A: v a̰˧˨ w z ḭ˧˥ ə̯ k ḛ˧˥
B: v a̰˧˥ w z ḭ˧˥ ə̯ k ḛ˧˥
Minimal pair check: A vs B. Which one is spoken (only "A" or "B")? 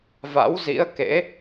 B